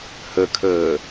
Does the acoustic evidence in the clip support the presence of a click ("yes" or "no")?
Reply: no